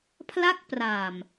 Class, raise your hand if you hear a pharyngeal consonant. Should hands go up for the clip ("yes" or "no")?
no